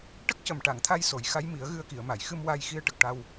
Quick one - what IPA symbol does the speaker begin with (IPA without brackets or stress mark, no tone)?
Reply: ʈ